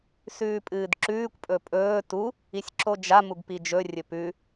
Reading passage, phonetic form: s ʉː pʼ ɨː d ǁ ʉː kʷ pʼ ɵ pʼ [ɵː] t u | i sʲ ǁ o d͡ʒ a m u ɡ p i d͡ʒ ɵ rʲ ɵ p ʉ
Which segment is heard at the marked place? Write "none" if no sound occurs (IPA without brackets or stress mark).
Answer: ɵː